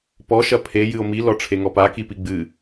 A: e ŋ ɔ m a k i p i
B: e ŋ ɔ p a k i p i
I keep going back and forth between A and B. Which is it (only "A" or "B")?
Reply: B